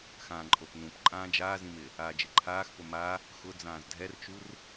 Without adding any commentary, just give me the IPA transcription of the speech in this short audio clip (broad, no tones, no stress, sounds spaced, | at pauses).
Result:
x ãː ǃʼ o p n ũ p ǃʼ ãː d͡ʒ aː z ĩ m ɪ | aː d͡ʒ ɪ ǃʰ aː x p ʊ m a | x ʊ d͡z ãː z dʱ ɛ r t͡ʃ u r